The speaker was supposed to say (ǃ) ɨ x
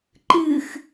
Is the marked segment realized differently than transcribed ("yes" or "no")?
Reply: no